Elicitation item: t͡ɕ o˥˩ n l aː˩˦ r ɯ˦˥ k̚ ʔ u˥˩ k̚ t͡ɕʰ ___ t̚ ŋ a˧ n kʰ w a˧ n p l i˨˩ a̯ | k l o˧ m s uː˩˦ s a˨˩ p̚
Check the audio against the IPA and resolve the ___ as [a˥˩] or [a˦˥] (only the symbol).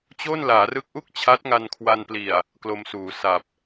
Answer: a˦˥